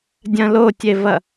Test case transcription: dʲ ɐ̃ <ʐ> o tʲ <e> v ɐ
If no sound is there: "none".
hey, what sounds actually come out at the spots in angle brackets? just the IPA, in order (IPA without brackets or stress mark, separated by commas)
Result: l, e